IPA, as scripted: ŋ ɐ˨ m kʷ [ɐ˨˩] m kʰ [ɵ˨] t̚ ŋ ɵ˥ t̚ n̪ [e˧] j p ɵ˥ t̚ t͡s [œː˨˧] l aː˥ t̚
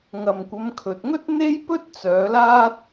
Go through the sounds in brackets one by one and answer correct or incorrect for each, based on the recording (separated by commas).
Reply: incorrect, correct, incorrect, correct